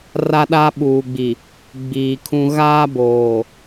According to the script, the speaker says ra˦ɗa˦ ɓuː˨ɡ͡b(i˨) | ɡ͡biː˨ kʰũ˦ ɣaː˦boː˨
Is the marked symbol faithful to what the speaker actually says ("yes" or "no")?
yes